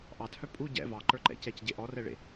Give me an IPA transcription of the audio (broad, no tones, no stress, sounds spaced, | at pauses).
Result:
ʔ ɑ t h œ pʼ u ɟ ɛ̰ v ɑ ǃ ə˞ ǃ ɛ̰ c ɛ c ɟ e ʔ ɔ r ɛ ɭ ḛ